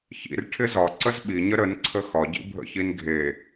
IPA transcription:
çḭr ʈʰɪzɒ ǀəzɓiɲə ɾənǀʰə xɒɟḭ bʱə̰çinɡʱe

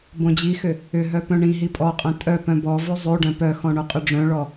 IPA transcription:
bõd͡ʑixʏ | ʏɦœ pœ̃ɳĩɦi pʼɔqʼœ̃ tʼœpœ̃ bɔvʉ zˤʉ ɖœ̃pœxɔ̃ ɳoqʼʏɖ͡ʐœ̃ɭɔ

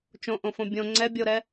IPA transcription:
t͡ʃõʔõfõ bʲõ ŋ͡ǀɛ bʲoɾɛ

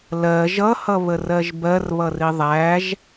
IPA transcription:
lɜ ʒʌhʌβərɜʒ bɜrβʌri ðˤæʒ

